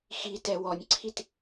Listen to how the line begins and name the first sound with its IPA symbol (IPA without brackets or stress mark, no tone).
x